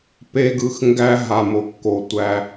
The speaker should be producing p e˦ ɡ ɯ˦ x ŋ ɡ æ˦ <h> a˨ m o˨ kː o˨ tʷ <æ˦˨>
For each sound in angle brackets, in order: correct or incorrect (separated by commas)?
incorrect, incorrect